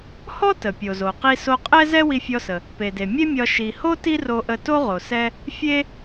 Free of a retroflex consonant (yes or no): yes